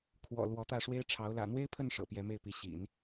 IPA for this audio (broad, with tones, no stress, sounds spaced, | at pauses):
kʰ w ɔ̰˨˩ l w ɔ˧˥ t̪ ä˥˩ ʂ w e˥ ɪ̯ ʈ͡ʂʰ ɑ˧˥ ʊ̯ l ä̰˨˩ n̪ w e˥ ɪ̯ pʰ ə˥˩ n ʂ ɤ̰˨˩ p j ɛ˧˥ m e˥˩ ɪ̯ p i˧˥ ɕ ḭ˨˩˦ n